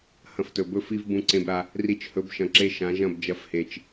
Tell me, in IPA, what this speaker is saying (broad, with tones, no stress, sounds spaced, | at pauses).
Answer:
h ɐ̃˧ f t ɵ˨ b ɵ˧ f i˧ v b ũ˧ ǀ ẽ˧ b ɾ a˧ | r i˧ t͡ʃ h ɵ˨˦ b ʃ ɐ̃˨ ǁ e˧ ʃ ã˨˦ ʒ ɐ̃˦˨ b d͡ʒ ɐ˧ f h e˨ t͡ʃ